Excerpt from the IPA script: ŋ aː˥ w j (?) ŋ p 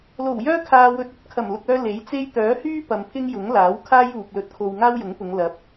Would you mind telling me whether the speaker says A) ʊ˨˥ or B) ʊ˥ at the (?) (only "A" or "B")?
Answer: A